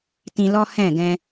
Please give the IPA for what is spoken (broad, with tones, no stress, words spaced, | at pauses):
tĩ˧lɔ˦ hɛ̃˦˨ɡɛ̃˧